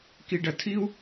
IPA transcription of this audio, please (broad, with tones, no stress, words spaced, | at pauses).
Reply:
ki˧ɖɐ˧ tʰi˥u̯